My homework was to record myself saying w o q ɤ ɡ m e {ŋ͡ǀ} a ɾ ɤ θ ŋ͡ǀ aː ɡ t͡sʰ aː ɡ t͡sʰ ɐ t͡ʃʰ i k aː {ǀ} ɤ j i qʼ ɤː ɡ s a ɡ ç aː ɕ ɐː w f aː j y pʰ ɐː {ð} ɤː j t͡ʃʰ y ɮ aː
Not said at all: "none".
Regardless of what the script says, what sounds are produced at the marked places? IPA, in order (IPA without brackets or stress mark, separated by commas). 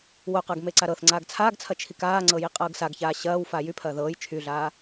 ǀ, ŋ͡ǀ, ð